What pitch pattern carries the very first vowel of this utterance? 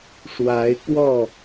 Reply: rising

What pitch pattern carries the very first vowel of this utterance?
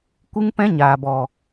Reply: high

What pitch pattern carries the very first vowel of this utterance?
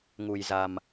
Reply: low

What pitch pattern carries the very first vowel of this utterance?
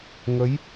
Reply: rising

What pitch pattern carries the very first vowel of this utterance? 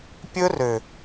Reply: high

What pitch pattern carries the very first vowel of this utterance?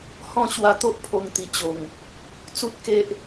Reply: falling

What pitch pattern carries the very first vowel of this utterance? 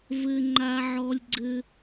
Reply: high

